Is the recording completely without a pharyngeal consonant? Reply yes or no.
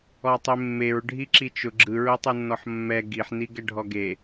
no